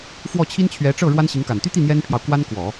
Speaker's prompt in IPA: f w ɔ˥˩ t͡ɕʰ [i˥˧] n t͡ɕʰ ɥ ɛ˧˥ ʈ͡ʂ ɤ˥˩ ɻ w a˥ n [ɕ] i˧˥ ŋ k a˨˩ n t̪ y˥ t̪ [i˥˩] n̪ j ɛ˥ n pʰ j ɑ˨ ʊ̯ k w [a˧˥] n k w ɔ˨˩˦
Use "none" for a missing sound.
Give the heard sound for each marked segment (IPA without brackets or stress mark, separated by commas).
i˥, ɕ, i˥˩, a˥